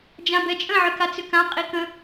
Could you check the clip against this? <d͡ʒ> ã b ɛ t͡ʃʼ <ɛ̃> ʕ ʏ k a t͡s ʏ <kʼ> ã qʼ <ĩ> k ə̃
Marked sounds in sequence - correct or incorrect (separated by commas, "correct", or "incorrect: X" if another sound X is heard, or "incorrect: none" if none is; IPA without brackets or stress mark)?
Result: correct, incorrect: ə̃, incorrect: k, incorrect: i